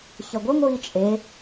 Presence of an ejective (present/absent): present